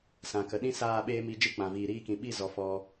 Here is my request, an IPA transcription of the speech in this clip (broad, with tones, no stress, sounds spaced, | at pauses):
s ã˨ k ə˨ ɗ ĩ˦ s aː˦˨ ɓ eː˦ m i˧ d͡ʒ ɨ˦ k͡p ã˨ v iː˨ ɾ iː˧ k ĩ˨ ɓ i˦˨ z ɔ˨ f ɔ˧